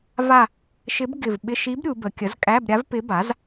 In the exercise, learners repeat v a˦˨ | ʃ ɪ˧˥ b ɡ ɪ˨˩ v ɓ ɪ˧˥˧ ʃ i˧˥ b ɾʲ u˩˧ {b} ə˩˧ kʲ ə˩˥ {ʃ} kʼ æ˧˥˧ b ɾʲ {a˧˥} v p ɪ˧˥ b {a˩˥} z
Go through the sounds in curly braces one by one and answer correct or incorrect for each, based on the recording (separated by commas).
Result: correct, incorrect, correct, correct